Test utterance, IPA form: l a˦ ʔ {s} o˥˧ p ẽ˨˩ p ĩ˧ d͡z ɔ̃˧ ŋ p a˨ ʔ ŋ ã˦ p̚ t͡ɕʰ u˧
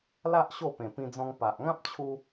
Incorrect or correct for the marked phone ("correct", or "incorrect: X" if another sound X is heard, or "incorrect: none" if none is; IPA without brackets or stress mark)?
incorrect: ɕ